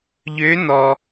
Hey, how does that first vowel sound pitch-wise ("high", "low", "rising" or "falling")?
rising